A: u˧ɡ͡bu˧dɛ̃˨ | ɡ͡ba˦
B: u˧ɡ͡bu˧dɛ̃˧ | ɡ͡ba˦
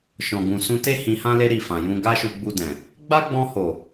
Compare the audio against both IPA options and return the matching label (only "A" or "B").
A